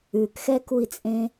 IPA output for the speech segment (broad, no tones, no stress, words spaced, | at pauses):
ʉkxɛkui̯t͡sʼẽ